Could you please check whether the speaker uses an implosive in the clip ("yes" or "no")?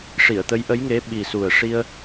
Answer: yes